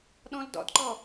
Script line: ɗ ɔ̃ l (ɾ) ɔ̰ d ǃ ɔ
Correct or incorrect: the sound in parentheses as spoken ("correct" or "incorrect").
incorrect